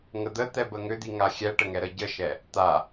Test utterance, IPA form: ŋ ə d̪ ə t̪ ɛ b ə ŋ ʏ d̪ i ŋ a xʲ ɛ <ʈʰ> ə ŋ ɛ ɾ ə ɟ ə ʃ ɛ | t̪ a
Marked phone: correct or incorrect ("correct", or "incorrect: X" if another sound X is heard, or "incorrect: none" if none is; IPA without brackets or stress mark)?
incorrect: ʈ